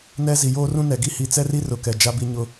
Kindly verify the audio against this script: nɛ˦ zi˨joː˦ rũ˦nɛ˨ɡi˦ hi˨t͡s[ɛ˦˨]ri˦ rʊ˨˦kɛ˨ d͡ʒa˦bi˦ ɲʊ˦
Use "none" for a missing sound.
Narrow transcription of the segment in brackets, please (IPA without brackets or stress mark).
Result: ɛ˦